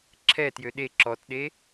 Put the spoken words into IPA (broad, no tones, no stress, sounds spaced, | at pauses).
ǁʰ ɛ t j ø ɗ e ǁ ɔ t ɗ e